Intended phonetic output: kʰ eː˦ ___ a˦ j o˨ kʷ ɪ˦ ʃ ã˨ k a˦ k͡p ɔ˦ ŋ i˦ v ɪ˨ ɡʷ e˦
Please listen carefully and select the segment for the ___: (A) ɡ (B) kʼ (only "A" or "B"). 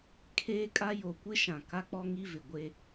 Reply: B